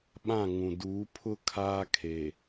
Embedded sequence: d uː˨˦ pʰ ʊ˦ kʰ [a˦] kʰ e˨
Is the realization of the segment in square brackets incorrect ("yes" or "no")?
yes